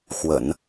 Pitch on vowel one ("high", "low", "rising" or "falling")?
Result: low